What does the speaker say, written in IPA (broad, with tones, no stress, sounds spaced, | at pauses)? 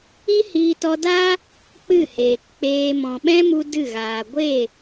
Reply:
i˦ h iː˧ t ɔ˧ d a˦ | k͡p ɨ˦˨ h eː˨ k k͡p eː˧ m ɔ̃˨ ɓ ɛ̃˦ m u˧ d ɨ˦˨ ɣ aː˨ ɡʷ e˦˨